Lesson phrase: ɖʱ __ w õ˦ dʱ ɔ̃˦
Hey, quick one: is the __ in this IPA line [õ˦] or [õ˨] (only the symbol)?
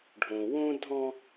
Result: õ˨